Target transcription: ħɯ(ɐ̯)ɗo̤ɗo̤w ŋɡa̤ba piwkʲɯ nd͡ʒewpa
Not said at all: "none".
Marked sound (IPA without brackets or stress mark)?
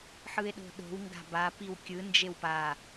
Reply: e̯